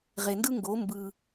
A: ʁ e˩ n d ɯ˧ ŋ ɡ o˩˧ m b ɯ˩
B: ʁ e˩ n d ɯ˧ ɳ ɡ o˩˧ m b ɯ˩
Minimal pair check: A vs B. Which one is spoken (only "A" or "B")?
A